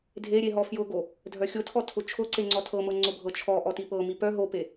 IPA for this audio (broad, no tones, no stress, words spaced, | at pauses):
dʱeɾʲe ɦɔfjʊɡo | dʱœxʲʊtʰɔtʰʊ t͡ʃʰʊǀeŋ͡ǀɔ tʰɤmɤŋ͡ǀʊbʱɤ t͡ʃʰɔ ʔɔtipɤ mipœ ɦope